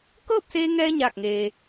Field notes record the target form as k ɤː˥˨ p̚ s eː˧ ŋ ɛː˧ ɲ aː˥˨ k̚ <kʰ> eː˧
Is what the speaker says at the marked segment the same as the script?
no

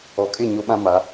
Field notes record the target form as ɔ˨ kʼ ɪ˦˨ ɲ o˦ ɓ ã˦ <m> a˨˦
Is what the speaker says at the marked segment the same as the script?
yes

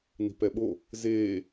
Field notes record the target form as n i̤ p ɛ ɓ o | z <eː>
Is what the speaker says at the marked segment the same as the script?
yes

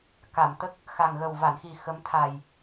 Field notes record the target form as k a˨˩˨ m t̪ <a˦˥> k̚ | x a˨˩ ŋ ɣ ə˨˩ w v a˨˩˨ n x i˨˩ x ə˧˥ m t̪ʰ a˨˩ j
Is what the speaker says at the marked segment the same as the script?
no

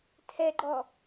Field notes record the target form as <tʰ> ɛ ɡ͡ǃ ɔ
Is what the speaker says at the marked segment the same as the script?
yes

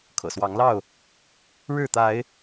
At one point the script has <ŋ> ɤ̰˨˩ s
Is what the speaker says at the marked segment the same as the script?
no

